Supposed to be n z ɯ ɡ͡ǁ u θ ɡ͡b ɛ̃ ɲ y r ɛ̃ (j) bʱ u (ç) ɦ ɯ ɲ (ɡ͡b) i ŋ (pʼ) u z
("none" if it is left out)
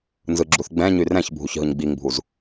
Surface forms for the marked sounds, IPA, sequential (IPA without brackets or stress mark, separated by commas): ç, ç, ɡ͡b, bʱ